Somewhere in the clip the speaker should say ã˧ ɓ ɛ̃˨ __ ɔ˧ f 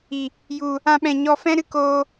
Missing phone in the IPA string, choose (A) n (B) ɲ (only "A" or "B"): B